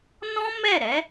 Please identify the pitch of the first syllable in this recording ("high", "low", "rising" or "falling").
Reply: high